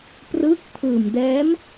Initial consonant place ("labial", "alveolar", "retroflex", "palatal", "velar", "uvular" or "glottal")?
labial